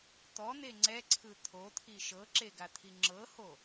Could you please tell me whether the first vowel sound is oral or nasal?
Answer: oral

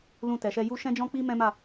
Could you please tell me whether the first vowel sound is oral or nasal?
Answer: nasal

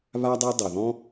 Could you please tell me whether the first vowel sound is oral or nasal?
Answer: oral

